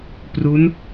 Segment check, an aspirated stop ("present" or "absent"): absent